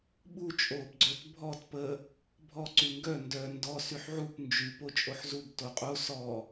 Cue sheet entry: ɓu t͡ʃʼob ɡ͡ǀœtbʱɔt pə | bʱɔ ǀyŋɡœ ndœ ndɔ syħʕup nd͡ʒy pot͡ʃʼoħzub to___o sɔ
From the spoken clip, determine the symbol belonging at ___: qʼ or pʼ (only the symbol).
qʼ